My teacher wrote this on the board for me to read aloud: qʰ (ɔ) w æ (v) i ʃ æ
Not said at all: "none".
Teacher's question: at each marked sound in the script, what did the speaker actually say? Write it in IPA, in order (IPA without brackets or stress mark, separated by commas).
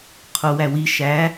o, w